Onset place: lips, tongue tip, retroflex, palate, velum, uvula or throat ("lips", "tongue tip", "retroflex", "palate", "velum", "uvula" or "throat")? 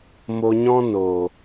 lips